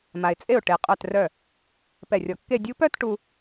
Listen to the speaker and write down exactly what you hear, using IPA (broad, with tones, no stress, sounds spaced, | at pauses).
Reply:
m a˩ ɪ̯ t͡sʼ e˧˩ ʊ̯ ʈ e˩ qʼ œ˧˩ t r œ˧˩ | p ɛ˧˩ rʲ ɔ˧˩ kː e˥˧ dʲ u˧ p œ˥˧ t ʈ u˧